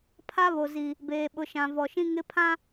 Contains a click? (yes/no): no